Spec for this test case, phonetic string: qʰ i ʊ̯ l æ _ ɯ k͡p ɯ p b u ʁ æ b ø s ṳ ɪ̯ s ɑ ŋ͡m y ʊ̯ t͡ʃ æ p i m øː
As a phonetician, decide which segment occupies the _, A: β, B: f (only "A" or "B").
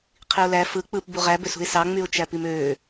B